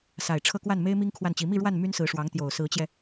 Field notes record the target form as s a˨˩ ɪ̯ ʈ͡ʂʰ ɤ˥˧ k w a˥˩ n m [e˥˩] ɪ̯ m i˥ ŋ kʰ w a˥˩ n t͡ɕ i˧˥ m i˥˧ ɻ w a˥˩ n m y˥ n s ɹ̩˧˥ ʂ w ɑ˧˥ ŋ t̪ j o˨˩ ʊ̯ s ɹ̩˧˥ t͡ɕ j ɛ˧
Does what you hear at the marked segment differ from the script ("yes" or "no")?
yes